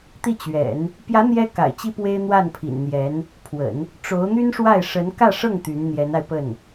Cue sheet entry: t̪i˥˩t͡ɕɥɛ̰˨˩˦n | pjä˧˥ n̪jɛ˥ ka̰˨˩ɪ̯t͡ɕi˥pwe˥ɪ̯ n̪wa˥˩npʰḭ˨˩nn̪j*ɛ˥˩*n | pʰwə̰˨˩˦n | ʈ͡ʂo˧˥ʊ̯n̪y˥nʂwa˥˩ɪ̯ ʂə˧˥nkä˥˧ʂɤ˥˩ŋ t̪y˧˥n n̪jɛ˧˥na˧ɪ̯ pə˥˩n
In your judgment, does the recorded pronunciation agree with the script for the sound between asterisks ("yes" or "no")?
no